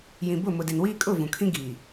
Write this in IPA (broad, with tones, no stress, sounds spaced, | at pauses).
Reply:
j ĩ˨ b ʊ˦˨ m ʊ˨ d e˨ n w iː˦ kʼ ʊ˦˨ v ũ˨ kʰ ĩ˦ ɡ iː˨